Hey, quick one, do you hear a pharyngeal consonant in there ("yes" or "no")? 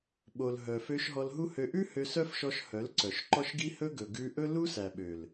no